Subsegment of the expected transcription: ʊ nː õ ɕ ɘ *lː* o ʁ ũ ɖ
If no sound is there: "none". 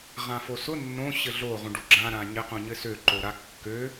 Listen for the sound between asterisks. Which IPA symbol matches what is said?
ɮ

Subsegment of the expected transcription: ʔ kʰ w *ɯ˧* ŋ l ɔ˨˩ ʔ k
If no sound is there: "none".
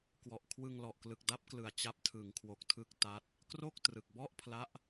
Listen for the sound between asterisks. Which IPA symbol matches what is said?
ɯ˧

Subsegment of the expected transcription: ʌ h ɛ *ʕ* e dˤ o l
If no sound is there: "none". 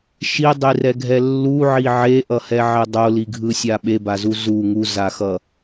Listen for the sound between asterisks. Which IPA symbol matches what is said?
ʕ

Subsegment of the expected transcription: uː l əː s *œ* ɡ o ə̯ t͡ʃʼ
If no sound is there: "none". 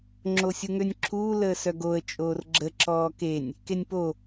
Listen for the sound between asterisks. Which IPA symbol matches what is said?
œ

